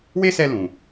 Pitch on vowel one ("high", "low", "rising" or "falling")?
high